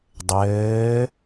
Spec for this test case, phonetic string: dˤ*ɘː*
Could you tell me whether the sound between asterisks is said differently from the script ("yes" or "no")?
no